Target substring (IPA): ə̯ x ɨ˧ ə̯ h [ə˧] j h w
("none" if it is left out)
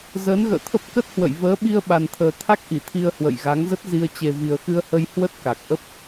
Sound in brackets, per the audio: ə˧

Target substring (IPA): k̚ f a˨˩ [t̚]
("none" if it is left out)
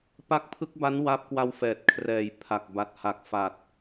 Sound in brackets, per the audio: t̚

